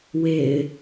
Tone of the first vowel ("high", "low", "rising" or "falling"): low